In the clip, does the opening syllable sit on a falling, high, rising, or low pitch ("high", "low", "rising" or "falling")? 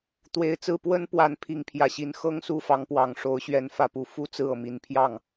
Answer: low